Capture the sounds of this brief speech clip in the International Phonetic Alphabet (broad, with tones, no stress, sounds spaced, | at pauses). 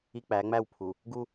i˦ k͡p æ˨˦ ŋ͡m æ˦˨ w pʰ u˨ | ɡ u˦